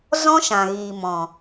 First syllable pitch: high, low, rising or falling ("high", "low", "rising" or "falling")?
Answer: high